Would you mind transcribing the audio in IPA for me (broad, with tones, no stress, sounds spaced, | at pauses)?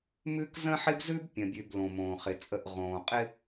m ʉ˦ k z ə̃˦ ħ ɪ˦ b z ʉ˦ b pʲ ə̃˨ bʲ ʉ˨ b l õ˨ m õː˨ χ ɪ˨ t͡sʼ ə˦˨ ʔ ʁ õː˨ qʼ ɪ˦